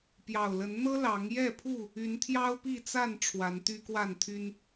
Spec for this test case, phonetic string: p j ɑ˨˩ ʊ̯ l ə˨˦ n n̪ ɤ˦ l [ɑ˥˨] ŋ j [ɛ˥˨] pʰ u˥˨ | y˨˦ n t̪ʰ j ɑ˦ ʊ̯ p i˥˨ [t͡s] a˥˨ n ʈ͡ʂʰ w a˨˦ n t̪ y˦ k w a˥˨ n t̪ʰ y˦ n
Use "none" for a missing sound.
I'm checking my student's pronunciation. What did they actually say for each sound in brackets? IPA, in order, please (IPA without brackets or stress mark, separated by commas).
ɑ˨˦, ɛ˥˨, t͡s